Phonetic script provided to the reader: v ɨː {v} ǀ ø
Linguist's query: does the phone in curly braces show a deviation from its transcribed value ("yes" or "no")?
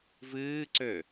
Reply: yes